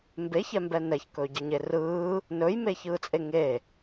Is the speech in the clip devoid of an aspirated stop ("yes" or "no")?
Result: yes